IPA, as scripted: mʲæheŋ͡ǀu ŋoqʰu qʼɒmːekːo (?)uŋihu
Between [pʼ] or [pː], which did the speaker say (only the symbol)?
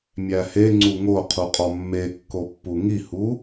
pː